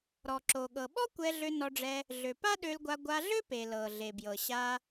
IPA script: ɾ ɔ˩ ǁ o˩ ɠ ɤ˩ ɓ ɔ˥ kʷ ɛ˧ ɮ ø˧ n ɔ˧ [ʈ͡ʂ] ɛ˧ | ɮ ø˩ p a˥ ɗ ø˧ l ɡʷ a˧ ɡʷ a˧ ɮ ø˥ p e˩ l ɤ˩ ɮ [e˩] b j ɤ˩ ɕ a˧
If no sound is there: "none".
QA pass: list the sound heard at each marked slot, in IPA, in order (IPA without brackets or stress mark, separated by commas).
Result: ɖ͡ʐ, e˩